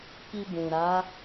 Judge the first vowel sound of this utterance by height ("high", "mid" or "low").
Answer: high